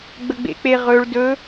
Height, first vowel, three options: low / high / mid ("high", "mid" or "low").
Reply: mid